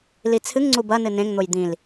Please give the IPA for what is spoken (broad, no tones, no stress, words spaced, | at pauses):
lit͡sʰɨŋŋ͡ǀu bɐnɨ nẽŋn̪oj d̪ĩl